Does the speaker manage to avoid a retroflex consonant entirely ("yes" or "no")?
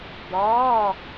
yes